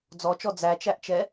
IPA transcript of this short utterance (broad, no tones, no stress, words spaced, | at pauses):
d͡zɔt͡ʃɔ d͡zæt͡ʃæʔt͡ʃɛ